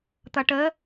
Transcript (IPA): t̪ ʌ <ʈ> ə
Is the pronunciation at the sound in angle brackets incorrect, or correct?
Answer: correct